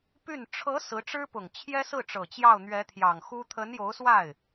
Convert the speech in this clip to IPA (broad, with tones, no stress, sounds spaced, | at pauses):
p y˥˩ n ʈ͡ʂʰ ɤ˧˥ s ɹ̩˧˥ ʈ͡ʂ ɻ̩˥ p ʊ˨˩ ŋ t͡ɕʰ j ɛ˥ s ɹ̩˥˩ ʈ͡ʂ ɤ˨˩ t͡ɕ j ɑ˥˩ ʊ̯ n̪ ɥ ɛ˧˥ t̪ʰ j ɑ˨˩ ŋ x u˥ t̪ʰ ə˧˥ n j o˧˥ ʊ̯ s w a˥˩ ɪ̯